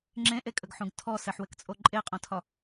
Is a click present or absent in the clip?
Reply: present